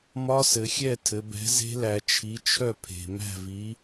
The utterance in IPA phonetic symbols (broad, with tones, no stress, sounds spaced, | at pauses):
m ɒ˧˥ s ɘ˩˧ xʲ ɛ˥˩ tʰ ɘ˩˧ b ɛ̤˩˥ z e̤˧˥ l æ˩˧ t͡ʃʰ i˩˥ t͡ʃʰ œ˥˩ pʰ e̤˩ m æ̤˥˩ v i˩˥